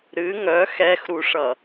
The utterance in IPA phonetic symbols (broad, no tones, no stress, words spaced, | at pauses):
ɾɨ ŋœ xɛxɾuʂʌ